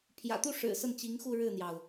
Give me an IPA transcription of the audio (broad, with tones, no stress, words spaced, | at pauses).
pʰjä̰˨˩t̪u˥˩ʂɻ̩˨˩ sə˥˩nt͡ɕi˧˥ŋxu˥˧ ɻɻ̩˥˩n̪jɑ˩ʊ̯